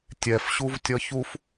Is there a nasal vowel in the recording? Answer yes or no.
no